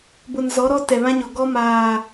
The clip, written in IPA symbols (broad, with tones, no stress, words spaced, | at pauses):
bʊ˨nzɔ˨˦ɾɔ˦ tɛ˨βã˦ɲɔ˨ ɡɔ˦maː˨